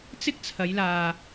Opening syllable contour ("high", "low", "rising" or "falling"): high